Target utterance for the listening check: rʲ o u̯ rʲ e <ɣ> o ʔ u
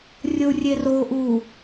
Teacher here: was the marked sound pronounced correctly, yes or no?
no